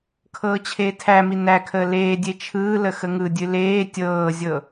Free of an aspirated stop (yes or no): no